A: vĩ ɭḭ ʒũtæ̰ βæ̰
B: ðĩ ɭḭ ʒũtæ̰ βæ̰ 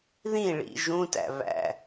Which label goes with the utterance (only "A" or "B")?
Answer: B